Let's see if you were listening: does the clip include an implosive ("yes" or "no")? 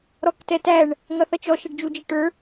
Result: no